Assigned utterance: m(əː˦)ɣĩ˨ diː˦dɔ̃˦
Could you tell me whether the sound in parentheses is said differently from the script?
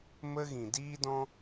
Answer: yes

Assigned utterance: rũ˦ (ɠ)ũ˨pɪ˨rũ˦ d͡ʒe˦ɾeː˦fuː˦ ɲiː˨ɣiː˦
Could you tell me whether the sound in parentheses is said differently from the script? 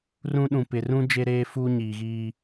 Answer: yes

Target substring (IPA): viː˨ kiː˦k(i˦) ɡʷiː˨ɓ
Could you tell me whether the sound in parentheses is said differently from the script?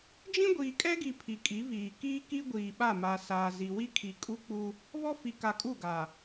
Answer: no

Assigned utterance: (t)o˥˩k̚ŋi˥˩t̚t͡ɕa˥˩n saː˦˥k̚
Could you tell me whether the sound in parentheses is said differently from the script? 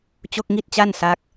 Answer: yes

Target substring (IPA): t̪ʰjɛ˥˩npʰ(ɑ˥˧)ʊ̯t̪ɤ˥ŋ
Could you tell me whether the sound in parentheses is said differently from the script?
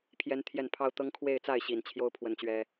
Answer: yes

